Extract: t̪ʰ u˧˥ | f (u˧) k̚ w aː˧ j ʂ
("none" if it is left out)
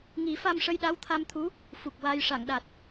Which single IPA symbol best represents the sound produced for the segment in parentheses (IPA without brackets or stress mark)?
u˨˩